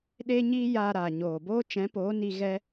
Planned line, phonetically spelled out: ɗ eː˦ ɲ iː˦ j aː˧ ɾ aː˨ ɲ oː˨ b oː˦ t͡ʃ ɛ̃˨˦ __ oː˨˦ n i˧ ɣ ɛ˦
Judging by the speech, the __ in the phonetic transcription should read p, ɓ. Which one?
p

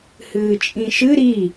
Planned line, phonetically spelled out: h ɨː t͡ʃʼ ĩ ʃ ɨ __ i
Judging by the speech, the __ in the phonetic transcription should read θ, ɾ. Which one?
ɾ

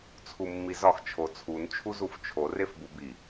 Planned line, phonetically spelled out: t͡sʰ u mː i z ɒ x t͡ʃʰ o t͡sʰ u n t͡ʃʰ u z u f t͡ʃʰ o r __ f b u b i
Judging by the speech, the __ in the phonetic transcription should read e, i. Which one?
e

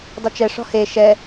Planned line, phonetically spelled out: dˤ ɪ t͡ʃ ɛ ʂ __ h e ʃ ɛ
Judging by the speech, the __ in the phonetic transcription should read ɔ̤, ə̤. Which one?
ɔ̤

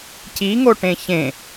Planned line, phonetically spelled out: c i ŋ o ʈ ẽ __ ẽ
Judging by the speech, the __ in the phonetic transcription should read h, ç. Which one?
ç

